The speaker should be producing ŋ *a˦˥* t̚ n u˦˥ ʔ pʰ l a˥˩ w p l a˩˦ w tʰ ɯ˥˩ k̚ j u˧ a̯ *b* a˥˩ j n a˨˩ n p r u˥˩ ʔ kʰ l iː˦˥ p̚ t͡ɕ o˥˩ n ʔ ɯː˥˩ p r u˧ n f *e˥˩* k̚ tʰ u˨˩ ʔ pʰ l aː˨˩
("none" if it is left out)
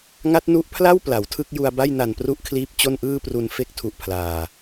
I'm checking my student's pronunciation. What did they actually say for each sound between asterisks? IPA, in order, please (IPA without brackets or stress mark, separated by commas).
a˦˥, b, e˥˩